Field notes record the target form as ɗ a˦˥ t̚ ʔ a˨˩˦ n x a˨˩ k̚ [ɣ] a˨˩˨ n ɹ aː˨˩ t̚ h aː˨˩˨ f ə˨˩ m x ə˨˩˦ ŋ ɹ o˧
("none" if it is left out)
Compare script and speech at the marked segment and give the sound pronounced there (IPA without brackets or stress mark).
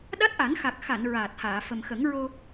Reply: x